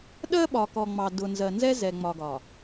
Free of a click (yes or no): yes